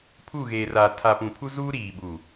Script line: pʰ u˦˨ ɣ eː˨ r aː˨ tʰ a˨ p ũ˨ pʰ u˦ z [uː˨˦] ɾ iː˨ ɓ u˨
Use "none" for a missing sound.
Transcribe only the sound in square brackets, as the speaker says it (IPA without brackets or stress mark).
uː˦